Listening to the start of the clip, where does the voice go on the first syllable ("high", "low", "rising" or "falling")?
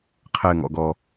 low